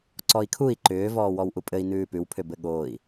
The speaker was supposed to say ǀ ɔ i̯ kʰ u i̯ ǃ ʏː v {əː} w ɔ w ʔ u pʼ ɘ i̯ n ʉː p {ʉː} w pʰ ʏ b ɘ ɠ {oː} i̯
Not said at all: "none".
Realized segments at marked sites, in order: ɔː, ʉ, oː

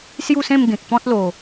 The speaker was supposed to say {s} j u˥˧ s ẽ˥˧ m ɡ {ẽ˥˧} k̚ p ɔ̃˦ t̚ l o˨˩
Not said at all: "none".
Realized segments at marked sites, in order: s, ẽ˨

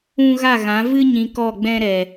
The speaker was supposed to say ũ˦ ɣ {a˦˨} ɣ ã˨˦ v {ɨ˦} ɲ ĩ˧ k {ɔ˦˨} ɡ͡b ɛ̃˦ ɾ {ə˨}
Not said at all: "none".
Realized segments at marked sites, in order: a˦˨, ɨ˦, ɔ˦˨, ɛ˨

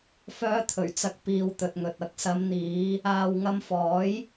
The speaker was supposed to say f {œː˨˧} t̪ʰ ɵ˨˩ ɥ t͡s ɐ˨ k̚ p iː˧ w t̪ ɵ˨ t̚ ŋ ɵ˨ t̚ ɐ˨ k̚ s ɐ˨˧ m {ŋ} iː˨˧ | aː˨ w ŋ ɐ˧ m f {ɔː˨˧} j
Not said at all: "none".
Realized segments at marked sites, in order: œː˨˧, n̪, ɔː˨˥

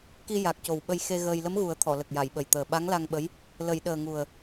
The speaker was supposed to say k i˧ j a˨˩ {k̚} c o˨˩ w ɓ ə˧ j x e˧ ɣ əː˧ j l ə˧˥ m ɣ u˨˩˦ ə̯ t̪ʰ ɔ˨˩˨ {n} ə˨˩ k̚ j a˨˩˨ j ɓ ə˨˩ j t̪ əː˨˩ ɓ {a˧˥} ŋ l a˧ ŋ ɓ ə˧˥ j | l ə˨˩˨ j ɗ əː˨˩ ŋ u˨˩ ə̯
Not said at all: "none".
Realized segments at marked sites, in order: k̚, l, a˧˥

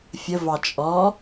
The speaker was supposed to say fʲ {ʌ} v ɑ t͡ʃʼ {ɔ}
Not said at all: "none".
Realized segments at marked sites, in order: ə, ɔ

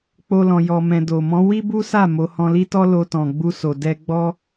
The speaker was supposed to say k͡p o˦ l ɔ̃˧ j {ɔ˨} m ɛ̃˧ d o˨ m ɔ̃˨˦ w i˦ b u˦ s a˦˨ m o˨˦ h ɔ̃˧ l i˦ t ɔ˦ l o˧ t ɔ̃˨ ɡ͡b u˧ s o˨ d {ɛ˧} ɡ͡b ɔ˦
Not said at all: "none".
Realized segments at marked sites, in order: ɔ˧, ɛ˧

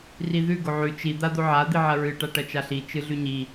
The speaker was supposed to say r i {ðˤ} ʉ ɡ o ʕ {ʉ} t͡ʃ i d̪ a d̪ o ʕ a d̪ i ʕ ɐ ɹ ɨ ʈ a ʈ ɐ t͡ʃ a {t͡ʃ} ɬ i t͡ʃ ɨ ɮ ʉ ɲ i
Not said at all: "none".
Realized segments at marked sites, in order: ð, ʉ, none

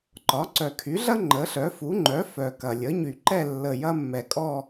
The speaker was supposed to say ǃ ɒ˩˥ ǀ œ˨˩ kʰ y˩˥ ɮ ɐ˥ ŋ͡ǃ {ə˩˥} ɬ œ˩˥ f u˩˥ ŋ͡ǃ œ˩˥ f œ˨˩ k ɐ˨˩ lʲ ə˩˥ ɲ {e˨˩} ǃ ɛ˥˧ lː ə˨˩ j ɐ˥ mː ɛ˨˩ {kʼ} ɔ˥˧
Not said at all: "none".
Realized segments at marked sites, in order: ə˩˥, y˨˩, kʼ

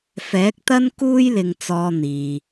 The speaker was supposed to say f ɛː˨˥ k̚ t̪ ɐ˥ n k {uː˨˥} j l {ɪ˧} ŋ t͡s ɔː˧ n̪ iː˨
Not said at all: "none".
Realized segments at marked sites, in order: uː˥, ɪ˧

